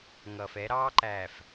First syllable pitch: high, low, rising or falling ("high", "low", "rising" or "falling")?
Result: low